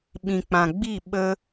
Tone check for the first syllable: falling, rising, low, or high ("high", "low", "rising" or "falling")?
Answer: low